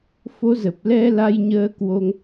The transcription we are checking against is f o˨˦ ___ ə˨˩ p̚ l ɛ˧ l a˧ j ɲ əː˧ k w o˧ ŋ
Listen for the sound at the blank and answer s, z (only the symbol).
z